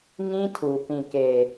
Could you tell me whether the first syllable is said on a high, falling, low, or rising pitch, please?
high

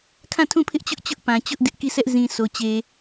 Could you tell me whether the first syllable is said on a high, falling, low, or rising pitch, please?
falling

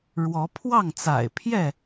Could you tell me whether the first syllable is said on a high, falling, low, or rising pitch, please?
rising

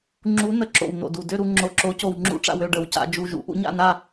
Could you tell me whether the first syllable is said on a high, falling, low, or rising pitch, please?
rising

